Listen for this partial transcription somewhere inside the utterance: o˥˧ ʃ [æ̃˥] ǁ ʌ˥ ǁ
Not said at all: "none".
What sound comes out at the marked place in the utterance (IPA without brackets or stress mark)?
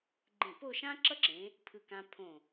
ã˥